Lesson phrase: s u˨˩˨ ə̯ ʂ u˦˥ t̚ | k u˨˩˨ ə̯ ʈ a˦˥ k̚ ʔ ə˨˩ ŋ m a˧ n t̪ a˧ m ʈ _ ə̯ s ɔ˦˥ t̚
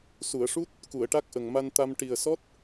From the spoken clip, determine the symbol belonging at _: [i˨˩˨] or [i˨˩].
i˨˩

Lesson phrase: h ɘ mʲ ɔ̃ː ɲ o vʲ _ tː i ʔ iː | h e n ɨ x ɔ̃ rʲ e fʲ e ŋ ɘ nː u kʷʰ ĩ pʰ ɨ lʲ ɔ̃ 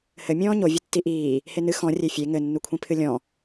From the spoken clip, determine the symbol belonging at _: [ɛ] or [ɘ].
ɘ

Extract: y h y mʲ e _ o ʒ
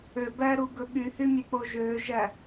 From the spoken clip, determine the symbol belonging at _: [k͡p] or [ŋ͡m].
k͡p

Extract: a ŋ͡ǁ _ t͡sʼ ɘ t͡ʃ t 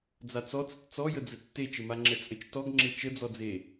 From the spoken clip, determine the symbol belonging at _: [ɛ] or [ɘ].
ɛ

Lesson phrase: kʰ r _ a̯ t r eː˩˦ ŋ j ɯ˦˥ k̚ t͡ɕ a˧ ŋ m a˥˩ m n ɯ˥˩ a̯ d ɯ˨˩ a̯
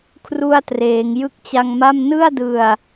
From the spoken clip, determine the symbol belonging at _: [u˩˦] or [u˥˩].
u˥˩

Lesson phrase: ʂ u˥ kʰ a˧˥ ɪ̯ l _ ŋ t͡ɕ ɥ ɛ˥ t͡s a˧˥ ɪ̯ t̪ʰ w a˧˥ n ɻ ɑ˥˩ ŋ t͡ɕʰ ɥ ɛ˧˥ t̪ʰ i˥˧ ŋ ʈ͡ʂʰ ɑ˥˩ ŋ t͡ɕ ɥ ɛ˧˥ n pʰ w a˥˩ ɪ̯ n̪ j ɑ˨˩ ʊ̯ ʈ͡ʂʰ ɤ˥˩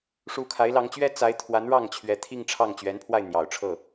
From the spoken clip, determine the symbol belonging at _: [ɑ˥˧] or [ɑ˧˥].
ɑ˧˥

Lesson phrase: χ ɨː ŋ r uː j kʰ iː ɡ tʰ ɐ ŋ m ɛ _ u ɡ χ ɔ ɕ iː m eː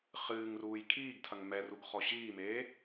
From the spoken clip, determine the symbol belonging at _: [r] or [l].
r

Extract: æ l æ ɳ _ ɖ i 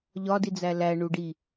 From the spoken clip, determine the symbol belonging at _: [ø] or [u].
u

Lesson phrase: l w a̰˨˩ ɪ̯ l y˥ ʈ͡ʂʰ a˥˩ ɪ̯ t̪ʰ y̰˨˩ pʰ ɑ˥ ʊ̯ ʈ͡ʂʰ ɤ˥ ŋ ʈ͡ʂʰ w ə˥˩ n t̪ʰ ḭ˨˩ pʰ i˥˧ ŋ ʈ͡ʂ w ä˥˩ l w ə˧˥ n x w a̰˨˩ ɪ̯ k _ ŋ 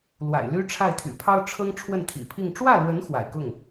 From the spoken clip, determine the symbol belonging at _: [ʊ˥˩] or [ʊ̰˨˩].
ʊ˥˩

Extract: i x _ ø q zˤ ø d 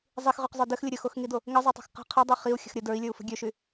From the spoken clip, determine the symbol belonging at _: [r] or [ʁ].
ʁ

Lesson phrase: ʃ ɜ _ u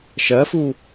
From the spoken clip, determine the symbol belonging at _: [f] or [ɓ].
f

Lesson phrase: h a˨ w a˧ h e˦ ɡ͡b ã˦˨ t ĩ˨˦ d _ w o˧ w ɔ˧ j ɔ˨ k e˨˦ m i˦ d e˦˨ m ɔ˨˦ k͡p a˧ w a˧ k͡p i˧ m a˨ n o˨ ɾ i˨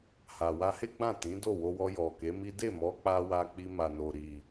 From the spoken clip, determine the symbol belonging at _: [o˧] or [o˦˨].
o˦˨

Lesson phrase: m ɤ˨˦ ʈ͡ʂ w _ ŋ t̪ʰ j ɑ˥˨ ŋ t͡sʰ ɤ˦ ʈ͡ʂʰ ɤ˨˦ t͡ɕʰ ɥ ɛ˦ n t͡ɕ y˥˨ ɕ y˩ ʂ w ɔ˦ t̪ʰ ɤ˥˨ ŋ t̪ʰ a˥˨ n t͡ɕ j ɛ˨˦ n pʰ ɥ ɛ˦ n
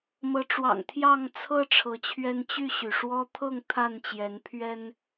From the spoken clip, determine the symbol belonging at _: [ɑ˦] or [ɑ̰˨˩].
ɑ̰˨˩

